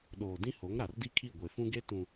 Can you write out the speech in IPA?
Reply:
ɗ oː˨ d ĩ˦ h o˨˦ ŋ ɾ a˨ r d i˦ kʰ i˦˨ ɡʷ e˨ f ũ˦ ɡ e˦ t ũ˨

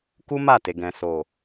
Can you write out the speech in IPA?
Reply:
k u˦ m a˦˨ t e˨ ɡ ɛ̃˨ s o˨

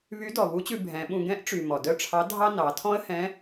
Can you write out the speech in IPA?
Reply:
β y˧˥ d ɔ˩ β u˧˥ t͡ɕ ʉ˧ bʱ ɛ̃˩˧ ɓ ũ˧ ɡ ɛ̃˧˥ ʔ ʈ͡ʂ y˩ m ɔ˩ d œ˥ ʈ͡ʂʰ ɑ˧˥ dʱ ɑ˥ n ɑ˩˧ tʰ ɔ̃˥ ə̯ h ɛ̃˧˥

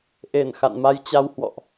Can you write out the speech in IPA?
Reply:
ʔ e˧˩ n x a̰˧˨ n m a˧ j t͡ɕ a˧ w h w ɔ̰˧˨ ʔ

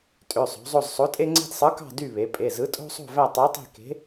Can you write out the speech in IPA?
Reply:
tʼ ø˩˧˩ sˤ o̤˩˧ zˤ o˦˨ z sˤ o˨˥ tʼ e˦ ŋ͡ǀ e̤˦ d sˤ ɯ˨˥ k ɑ̤˦˨ d y˦˨ β e˩˧ pʼ e˩˧˩ z ɯ˨˥ tʼ o̤˦ sˤ o̤˦˨ v æ˦˨ tˤ i˨˥ tˤ i̤˦˨ k e̤˨˥

